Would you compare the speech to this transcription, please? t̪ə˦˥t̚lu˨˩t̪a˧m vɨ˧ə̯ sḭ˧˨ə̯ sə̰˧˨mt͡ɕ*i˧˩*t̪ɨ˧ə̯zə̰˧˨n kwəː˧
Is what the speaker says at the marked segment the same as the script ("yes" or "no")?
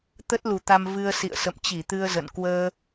yes